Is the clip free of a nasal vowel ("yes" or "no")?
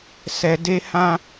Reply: no